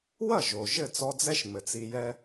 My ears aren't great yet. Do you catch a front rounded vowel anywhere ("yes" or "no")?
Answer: no